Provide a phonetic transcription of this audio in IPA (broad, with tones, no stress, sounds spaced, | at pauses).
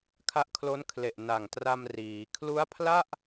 kʰ a˦˥ ʔ kʰ l o˦˥ n kʰ l e˨˩ ʔ n a˨˩ ŋ t r a˧ m r iː˩˦ kʰ l u˦˥ a̯ pʰ l a˥˩ ʔ